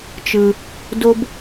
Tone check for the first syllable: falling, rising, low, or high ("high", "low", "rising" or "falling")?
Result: low